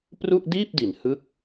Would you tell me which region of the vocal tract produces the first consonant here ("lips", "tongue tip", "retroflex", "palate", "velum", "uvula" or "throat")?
lips